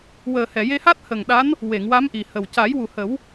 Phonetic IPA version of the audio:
w əː˨˩ h ɛ˨˩˨ j e˧ h a˦˥ t̚ h ə˨˩ ŋ ɗ a˧˥ n | w e˨˩˨ ŋ w a˧˥ m ʔ i˨˩ h ə˨˩ w c a˨˩˦ j w u˨˩ h ə˨˩˦ w

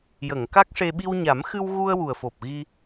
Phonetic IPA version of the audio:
j ə˨˩˨ ŋ k a˦˥ k̚ ʂ e˧ ɓ i˧ w ɲ a˨˩˦ m x ɨ˧ w ɣ u˧ ə̯ w u˨˩ ə̯ f o˨˩ p̚ ɣ i˧

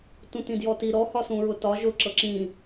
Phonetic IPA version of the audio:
t ũ t ĩ d j ɔ t i ɾ ɔ h ɒ s ũ ɹ ʊ t ɒ ʒ ʊ ǁ ɤ ǁ ĩ

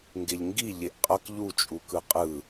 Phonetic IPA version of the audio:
ŋ ɡ e ʎ ŋ ɡ i ʎ e ʔ qʼ ʌ k ʎ u t͡ʃʼ u k ɯ qʼ ɯ

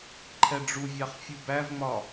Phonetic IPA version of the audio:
ǃʰ ɛ ɖ͡ʐ u vʲ ɑ χ fʲ u b æ v ŋ͡m ɒ

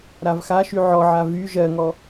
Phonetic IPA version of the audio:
ɾ a v x a ʃ y ʕ ɔ ʕ a v y ʒ ɜ ŋ ɔ

